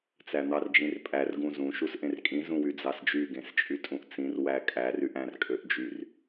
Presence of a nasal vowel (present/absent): present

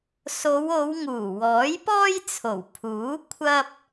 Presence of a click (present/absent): absent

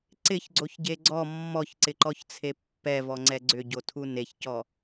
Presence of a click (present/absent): present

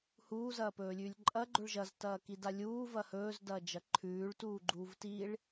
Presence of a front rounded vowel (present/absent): absent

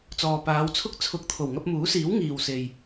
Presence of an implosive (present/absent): absent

